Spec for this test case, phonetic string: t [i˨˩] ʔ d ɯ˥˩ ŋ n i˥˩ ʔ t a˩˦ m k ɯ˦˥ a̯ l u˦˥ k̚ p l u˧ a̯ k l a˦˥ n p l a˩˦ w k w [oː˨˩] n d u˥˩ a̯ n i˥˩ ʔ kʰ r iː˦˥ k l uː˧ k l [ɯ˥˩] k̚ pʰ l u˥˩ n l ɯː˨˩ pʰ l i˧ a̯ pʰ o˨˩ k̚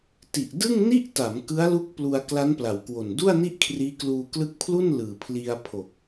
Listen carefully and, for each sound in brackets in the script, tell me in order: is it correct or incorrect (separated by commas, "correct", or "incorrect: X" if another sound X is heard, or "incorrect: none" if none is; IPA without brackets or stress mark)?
correct, incorrect: o˨˩, incorrect: ɯ˦˥